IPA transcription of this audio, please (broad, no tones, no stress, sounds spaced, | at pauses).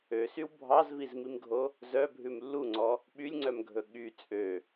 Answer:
ø s y w bʱ ɑ z v i z m i m ɡʱ o | z œ bʱ ʉ m lː u ŋ͡ǀ ɔ | ɓ y lʲ ŋ͡ǀ œ m ɡʱ ɵ ɠ y t͡sʼ ø